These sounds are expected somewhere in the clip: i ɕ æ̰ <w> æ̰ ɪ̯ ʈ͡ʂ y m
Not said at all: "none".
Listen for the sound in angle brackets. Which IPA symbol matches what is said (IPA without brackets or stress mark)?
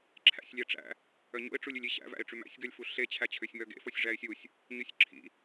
v